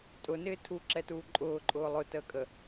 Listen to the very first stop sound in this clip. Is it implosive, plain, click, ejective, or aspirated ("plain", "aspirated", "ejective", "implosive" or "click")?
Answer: ejective